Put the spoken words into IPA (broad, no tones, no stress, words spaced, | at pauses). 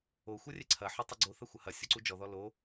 o xʷɐrʲɛǀʰɐ ħotˤuɡ͡ǀo θɐxʷɐhɐ sʲoǀud͡ʒɔ ðɔlo